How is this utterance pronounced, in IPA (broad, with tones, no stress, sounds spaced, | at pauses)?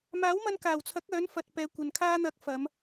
m aː˨˥ w m ɐ˧ n k aː˨˩ w t͡sʰ ɐ˨˥ k̚ œː˨˥ n f ɐ˨ t̚ p ɛː˨ kʷ ɐ˨ n kʰ aː˧ n̪ ɐ˨˥ k̚ f ɐ˨˧ m